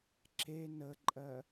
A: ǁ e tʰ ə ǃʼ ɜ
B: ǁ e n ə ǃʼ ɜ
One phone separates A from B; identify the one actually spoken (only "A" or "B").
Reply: B